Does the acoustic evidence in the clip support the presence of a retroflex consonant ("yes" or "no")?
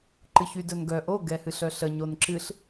no